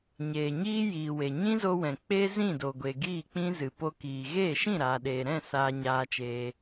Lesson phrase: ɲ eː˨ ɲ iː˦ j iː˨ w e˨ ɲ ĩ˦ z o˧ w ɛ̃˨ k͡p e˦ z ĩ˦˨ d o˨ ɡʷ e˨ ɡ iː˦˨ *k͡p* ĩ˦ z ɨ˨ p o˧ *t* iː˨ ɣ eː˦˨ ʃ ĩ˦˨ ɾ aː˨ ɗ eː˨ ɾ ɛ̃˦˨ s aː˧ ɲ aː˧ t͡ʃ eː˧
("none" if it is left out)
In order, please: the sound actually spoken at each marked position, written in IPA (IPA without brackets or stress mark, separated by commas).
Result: k͡p, k